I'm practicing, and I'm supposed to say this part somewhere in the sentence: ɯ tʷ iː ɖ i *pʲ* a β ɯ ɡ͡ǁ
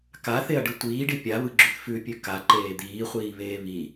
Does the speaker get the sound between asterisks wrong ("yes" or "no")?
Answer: no